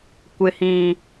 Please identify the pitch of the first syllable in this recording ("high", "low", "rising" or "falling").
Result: low